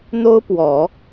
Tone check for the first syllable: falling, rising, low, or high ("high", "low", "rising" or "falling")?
high